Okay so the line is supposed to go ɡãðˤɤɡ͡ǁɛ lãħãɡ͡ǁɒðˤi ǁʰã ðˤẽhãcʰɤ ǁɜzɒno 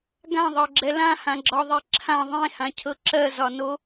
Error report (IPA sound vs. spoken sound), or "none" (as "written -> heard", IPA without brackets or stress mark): ħ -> h